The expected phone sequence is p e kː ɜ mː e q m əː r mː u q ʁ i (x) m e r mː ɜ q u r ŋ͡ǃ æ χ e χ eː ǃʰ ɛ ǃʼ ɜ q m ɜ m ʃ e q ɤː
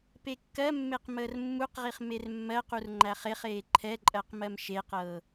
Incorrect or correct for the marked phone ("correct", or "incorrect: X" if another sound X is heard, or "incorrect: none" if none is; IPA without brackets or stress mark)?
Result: incorrect: χ